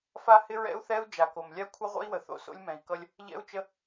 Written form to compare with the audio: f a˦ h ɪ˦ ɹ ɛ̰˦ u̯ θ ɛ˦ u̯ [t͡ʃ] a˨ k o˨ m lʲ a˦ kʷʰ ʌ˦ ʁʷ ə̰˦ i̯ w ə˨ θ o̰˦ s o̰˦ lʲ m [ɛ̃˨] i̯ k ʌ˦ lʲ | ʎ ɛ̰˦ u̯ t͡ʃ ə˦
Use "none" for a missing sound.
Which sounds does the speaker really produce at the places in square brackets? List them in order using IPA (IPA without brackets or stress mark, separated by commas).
d͡ʒ, ɛ̃˨